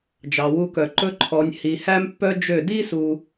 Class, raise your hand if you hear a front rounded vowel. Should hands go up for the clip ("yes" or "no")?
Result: yes